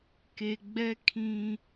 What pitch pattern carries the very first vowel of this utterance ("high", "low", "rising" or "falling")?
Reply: low